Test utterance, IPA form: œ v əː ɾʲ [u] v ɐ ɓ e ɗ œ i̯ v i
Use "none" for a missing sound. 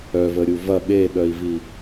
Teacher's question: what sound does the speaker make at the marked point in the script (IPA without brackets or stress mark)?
u